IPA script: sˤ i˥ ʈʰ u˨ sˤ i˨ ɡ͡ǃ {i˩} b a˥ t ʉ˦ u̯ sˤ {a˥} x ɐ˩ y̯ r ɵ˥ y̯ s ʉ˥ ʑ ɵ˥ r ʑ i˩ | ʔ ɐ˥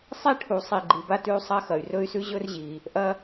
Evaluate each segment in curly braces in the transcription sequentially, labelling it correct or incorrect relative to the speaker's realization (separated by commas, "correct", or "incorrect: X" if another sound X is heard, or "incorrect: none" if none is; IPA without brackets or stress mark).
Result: incorrect: i˨, correct